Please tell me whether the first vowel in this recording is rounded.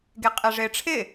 no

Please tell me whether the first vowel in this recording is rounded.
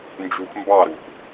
yes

